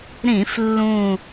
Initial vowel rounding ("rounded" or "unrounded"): unrounded